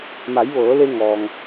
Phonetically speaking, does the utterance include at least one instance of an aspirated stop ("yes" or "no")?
no